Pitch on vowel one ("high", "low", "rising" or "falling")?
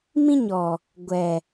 high